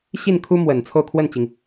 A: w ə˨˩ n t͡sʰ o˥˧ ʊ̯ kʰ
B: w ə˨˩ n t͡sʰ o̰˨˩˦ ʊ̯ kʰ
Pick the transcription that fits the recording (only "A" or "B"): A